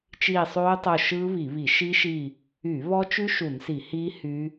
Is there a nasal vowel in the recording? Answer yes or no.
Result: no